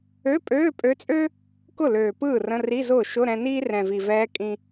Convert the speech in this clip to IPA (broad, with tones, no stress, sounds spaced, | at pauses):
ø˧˥˧ pʼ øː˧˥˧ pʼ ø˧˥ t͡sʼ ø˥ | k ʊ˥˩ l øː˨˩ p ɯː˥˩ r ə̃˧˥˧ r i˧˥˧ z ʊː˥˩ ʃ ʊ˧˥˧ ɾ ɛ̃˧ n iː˥ r ɛ̃˨˩ v i˨˩ v ɛː˧˥ kʼ ĩ˧